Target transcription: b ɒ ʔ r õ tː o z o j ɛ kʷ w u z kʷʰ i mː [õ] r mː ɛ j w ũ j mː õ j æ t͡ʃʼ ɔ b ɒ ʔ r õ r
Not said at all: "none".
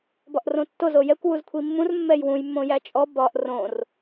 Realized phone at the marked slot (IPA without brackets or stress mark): ũ